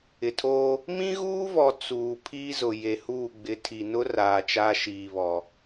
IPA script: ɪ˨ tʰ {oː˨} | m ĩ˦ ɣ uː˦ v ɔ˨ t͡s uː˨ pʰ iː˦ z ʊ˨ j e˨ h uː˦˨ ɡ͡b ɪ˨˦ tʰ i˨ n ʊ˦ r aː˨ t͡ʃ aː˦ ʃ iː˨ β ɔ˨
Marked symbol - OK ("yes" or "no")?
no